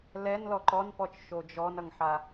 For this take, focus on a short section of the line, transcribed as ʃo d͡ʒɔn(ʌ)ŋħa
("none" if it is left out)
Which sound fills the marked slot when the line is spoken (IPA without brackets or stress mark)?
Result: ʌ